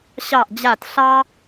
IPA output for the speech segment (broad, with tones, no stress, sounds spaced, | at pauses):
ɕ ɑ˧˩ ʔ d͡ʑ a˧˩ t ɬ ɑ˥